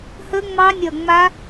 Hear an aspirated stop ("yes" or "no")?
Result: no